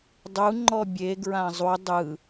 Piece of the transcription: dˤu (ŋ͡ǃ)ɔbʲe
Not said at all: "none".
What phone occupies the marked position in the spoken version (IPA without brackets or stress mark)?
ŋ͡ǃ